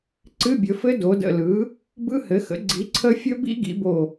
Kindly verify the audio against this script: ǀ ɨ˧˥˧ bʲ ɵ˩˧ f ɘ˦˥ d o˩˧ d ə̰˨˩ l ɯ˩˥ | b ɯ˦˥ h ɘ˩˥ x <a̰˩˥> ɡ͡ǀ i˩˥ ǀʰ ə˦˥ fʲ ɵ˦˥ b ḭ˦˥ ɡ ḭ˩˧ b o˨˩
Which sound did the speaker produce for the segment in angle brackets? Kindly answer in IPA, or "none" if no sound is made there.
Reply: ə̰˩˥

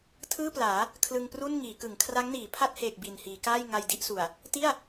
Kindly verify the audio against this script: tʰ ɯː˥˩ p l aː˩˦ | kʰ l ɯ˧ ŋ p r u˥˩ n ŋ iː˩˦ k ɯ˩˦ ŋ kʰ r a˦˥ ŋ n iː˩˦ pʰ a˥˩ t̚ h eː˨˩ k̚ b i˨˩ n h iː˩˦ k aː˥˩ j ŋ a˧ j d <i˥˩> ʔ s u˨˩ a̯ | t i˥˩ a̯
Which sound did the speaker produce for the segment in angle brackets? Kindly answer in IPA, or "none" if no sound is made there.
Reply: i˥˩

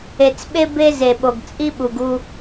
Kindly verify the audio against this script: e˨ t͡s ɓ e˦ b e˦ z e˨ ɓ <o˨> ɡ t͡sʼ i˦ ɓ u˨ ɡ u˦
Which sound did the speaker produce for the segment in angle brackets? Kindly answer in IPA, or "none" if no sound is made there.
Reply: o˨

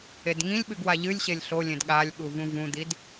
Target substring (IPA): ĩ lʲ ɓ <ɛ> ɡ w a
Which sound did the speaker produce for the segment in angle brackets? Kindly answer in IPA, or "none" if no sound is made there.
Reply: ɨ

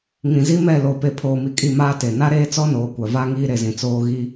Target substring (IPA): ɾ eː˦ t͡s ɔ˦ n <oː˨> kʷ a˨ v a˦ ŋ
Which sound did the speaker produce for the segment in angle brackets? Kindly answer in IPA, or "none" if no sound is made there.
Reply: oː˨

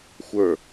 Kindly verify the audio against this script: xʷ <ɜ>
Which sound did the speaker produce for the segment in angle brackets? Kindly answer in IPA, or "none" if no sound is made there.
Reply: ə˞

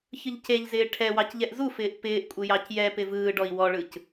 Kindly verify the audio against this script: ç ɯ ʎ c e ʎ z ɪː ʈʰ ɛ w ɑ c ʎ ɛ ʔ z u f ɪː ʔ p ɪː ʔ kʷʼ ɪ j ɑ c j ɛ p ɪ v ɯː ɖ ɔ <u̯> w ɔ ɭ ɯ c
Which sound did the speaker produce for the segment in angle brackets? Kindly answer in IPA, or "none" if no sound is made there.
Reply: i̯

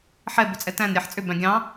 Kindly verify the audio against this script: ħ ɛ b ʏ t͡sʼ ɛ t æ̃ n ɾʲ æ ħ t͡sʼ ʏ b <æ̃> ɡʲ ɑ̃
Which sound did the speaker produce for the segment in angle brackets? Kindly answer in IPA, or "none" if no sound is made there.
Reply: æ̃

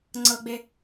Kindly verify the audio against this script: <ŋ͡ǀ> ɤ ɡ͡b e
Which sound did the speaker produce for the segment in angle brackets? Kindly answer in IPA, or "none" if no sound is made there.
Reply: ŋ͡ǀ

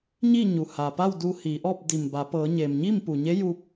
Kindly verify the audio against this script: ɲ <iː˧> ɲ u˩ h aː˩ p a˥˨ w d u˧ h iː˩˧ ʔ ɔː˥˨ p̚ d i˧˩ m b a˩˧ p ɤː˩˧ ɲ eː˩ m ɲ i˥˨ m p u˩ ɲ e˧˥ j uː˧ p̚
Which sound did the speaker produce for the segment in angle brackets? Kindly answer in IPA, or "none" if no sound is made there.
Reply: iː˥˨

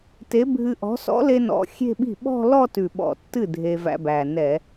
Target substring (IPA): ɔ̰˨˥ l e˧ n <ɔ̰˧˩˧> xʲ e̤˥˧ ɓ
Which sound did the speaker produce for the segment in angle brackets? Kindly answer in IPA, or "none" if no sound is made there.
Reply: ɔ̰˨˩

